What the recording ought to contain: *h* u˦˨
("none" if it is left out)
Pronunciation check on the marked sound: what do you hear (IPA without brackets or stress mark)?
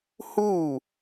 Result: h